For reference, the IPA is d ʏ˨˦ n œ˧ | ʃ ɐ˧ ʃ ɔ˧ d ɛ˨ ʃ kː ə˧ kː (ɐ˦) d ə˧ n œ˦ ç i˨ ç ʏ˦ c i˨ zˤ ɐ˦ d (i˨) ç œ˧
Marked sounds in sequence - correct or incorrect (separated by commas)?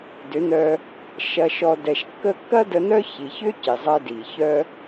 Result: correct, correct